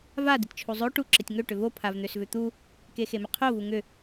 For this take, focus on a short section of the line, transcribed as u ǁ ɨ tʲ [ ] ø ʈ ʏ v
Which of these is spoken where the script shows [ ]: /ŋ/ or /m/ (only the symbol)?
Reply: ŋ